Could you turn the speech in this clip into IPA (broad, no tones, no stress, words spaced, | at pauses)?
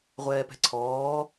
ʁʷɛːpɛ̤ǀʰɔː